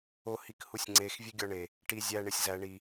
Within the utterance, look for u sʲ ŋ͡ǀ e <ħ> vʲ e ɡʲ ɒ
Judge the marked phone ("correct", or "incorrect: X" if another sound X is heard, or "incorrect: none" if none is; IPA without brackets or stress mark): incorrect: x